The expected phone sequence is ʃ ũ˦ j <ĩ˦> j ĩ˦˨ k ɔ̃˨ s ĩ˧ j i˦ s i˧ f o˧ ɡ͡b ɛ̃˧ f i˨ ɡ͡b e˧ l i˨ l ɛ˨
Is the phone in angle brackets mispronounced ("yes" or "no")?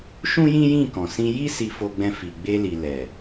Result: no